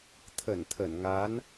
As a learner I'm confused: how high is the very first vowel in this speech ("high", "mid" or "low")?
mid